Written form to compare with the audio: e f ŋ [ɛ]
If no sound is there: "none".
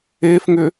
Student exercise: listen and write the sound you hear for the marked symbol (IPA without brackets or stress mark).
ʏ